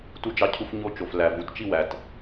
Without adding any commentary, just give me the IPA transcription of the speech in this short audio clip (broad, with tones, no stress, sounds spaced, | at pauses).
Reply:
t u˦ d͡ʒ ɑ˦ cʰ u˦ f ɲ o˦ t͡ʃ o˨ f l æ˨ v u˨ t t͡ʃ i˦ w æ˨ t